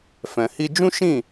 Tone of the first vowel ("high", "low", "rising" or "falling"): low